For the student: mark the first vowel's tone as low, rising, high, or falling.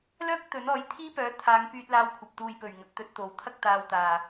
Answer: high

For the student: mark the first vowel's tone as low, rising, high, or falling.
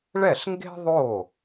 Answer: falling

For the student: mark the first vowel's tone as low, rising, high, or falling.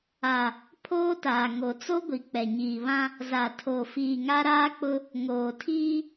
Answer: low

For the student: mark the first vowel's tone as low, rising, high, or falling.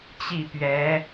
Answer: falling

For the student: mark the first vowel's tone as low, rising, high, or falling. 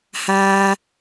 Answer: high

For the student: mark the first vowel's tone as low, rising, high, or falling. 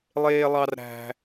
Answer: high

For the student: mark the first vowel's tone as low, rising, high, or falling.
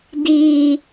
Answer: low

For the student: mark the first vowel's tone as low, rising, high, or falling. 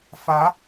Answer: rising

